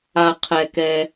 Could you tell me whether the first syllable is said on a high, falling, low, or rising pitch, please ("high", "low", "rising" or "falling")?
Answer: low